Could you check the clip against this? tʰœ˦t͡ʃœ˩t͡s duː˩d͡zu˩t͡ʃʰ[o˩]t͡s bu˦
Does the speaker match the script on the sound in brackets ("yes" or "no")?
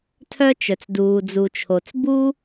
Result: yes